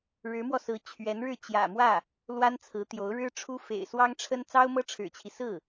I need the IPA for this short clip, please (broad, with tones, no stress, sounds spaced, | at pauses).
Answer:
ɻ ɻ̩˧˥ m w ɔ˧ s ɹ̩˧˥ t͡ɕʰ ɥ ɛ˧˥ n ɻ ɻ̩˥˩ t͡ɕ j ä̰˨˩ m w ä˥˩ | l w a˥ n t͡sʰ ɹ̩˧˥ t̪ j o˧˥ ʊ̯ ɻ ɻ̩˥ ʈ͡ʂʰ u˥ f ḛ˨˩ ɪ̯ s w ɑ˥ ŋ ʈ͡ʂʰ ə˥ n t͡s ɑ˥ ʊ̯ m ɤ˥ ʈ͡ʂʰ ɻ̩˨˩ t͡ɕʰ i˦ s ɹ̩˥˩